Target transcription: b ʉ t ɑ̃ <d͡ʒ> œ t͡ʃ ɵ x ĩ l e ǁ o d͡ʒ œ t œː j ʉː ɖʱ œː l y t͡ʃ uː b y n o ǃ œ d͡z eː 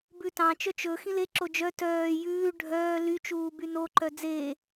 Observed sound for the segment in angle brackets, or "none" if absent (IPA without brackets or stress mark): t͡ʃ